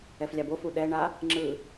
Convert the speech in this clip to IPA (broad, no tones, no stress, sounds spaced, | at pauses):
ɛ f lʲ a b o f u ɗ ɛ ɳ a | ŋ͡ǁ ɯ